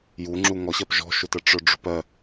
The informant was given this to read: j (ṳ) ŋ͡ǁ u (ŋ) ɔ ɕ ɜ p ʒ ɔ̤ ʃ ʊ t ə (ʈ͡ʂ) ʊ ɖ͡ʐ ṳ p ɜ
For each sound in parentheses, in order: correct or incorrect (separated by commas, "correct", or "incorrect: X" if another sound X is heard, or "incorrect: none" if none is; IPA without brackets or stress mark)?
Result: incorrect: u, correct, correct